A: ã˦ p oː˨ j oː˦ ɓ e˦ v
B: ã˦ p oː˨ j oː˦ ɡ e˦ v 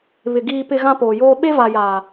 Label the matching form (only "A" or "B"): A